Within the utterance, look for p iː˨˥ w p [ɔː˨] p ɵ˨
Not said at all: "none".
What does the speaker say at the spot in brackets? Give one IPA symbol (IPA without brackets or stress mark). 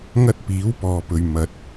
ɔː˨